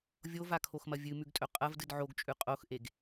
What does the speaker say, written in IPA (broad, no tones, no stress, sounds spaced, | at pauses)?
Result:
vʲ o v a kʰ o x m ɐ vʲ ɨ m ʉ ɡ tʼ ɵ qʼ ɐ v d ɨ d ʕ o ɡ t͡ʃʼ ʉ qʼ o x ʔ e ɡ